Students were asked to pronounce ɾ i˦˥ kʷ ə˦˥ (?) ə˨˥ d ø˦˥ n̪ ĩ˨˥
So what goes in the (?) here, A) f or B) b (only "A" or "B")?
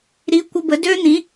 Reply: B